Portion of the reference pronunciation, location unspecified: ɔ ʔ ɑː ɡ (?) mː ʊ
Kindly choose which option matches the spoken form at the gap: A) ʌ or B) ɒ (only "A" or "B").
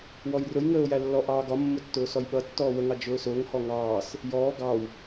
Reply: B